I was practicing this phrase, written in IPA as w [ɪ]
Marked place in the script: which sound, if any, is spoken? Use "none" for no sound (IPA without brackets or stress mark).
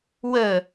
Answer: ə